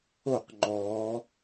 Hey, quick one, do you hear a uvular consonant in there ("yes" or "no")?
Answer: yes